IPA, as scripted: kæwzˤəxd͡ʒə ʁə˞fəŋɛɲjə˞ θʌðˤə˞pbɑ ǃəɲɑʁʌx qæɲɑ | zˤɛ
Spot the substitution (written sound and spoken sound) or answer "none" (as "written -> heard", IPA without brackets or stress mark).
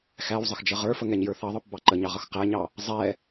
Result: k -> x